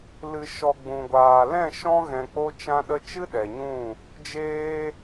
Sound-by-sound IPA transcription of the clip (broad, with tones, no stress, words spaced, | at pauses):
lɨ˨ʃɔ˨ ɡ͡bũ˨ɡʷaː˨ lɛ̃˦˨ ʃɔ̃˧ɣɛ̃˨k͡po˧ t͡ʃã˧ɗə˧t͡ʃɨ˦ ɗɛ˨ɲũ˦˨ | d͡ʒeː˧